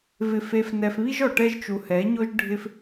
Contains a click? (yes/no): no